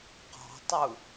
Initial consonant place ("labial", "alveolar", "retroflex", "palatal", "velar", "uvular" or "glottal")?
uvular